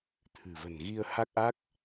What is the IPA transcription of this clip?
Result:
t̪ʰ ɨ̤˨˩ v ə̤˨˩ n ɣ i˧ ə̯ h a˦˥ k̚ ʔ a˦˥ k̚

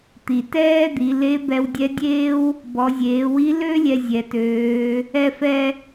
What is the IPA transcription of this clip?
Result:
t̪ i˩ t ɛː˥ d̪ i˩˧ l e˧˥ b ɛ˧ w dʲ ɛ˧˥ dʲ eː˥ w | b ɔ˩˧ zʲ eː˩˧ w i˧˥ l ø˥ lʲ ɛ˧ zʲ ɛ˩ t øː˩˧ | ɛ˧ f ɛ˧

